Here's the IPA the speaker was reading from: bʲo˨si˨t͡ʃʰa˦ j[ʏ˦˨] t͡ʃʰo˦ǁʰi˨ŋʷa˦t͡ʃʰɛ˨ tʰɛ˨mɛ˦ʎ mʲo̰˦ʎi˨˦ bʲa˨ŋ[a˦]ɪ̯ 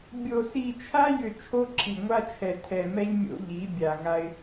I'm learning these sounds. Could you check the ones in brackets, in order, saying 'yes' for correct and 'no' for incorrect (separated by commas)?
yes, yes